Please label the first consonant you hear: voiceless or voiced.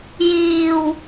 voiced